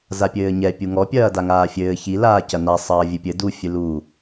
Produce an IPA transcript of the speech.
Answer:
zapʲɘːɲɛ pʲuŋɔ pʲɐːdaŋaːfʲɘː çi laːcɐna sˤɐːvʲɨpʲɘ du fʲɨlu

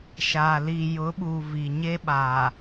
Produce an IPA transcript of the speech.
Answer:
ʃaː˨ li˨jʊ˨˦ɓu˨ vi˨ɲe˦ɓa˨

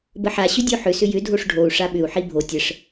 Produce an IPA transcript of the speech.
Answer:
bəħa ɕʏdʲoħʏ sʏjʏ dʱoʂɖʱou̯ ʂaɓʏu̯ ħibʱo tʲəʂ

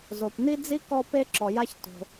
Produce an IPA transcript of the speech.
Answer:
zo˩pni˥d͡zi˥ kɔ˥pe˥ ǁɔ˩ja˥ç to̤˩

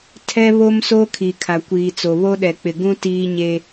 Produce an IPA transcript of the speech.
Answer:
tʰɛ˦βo˦mso˦ kʰi˨kʰa˨kʷiː˨t͡so˨ βo˦ɗɛ˨ k͡pɪ˨ɡũ˦ tiː˦ɲe˦

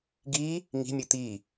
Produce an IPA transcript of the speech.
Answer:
ɡi | ŋi̤mʲɯ t̪i

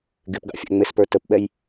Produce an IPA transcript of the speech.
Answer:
ɡɪpɡɑ̰fʲæ̰ ŋ͡mɪspə˞ təpɓɛj

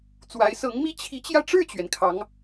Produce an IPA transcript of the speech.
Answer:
t͡swa˧˥ɪ̯sɤ˧˥ŋmi˥ t͡ɕʰi˧˥t͡ɕjä˧ʈ͡ʂɻ̩˥˩t͡ɕɥɛ˩n kʰɑ˧˥ŋ

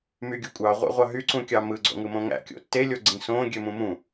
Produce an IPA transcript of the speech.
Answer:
myɡʲukʷʼɑ ʁʷæ̰ʁʷɑɦy ǀũkʲɑmɯ ɡ͡ǀo̰ŋɯmõŋæ̰ kʲo̰tːe lʲoɡ͡ǀĩsõ ɡʲømũmũ

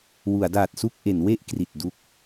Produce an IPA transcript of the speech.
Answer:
wu˩˦a̯daː˨˩t̚su˥˩k̚ ʔe˩˦n we˥˩ʔ kri˨˩t̚du˦˥k̚

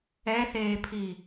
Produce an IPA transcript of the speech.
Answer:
ɛθeːpʰi

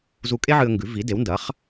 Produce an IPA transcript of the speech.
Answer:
zu˧kʼe˥ʕɨ˧ə̯ŋɡʉ˩˥ vi˩˥de˩˥w ndɐ˩˥χ

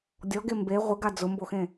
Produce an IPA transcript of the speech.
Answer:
dʲɔɡe mbe ʁʷɪɡa d͡zʊmboxẽ

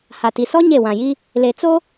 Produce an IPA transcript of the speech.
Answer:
ha˨ti˨ sɔ˦ ɲe˦˨wã˨ji˦ | le˨t͡so˦

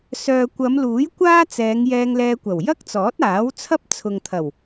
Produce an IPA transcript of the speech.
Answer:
sœː˨kʷɐ˨˧mluː˨˥j kʷaː˥t͡sɛː˨˧ŋ jɛː˧ŋlɛː˧kʷɐ˨˩w jɐ˥k̚t͡sɔː˨˥t̚aː˨˥wt͡sʰɐ˥p̚ t͡sʰʊ˨ŋt̪ʰɐ˨˩w

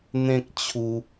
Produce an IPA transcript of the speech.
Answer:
n̪ẽ˦k̚t͡ɕʰu˧

